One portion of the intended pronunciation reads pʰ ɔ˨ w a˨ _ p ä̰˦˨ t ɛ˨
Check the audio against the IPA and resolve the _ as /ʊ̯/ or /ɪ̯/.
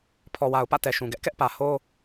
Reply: ʊ̯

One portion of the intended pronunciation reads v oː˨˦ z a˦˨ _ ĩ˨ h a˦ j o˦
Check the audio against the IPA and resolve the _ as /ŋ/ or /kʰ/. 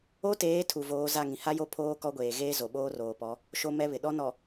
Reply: ŋ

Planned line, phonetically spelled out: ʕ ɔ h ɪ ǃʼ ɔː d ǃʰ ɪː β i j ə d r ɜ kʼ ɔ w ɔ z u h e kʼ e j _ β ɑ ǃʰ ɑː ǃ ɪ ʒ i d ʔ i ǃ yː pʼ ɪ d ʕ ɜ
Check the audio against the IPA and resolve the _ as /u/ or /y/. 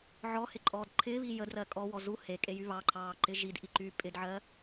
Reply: y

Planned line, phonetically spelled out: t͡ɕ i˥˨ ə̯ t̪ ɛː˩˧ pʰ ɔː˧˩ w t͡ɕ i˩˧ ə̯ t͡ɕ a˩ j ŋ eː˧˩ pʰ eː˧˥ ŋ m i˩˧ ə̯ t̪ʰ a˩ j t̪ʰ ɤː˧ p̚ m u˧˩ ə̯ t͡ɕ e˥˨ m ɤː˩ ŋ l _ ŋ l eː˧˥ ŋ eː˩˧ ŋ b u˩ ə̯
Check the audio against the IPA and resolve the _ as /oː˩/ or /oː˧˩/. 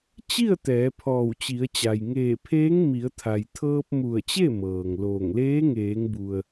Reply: oː˧˩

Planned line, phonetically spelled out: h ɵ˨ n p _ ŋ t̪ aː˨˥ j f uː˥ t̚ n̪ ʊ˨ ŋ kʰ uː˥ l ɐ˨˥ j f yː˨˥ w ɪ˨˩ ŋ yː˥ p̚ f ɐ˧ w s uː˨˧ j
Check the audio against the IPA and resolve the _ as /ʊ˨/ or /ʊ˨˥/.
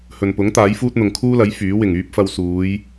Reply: ʊ˨˥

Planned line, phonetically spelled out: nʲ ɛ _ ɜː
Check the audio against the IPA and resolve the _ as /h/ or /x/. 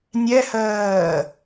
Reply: h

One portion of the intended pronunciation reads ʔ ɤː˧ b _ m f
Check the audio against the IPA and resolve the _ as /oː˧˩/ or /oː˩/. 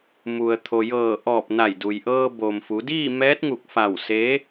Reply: oː˩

